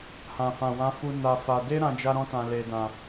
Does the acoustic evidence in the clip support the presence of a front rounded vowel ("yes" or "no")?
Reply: no